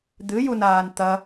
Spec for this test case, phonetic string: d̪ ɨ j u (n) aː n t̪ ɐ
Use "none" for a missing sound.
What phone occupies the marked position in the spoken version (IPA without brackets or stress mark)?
n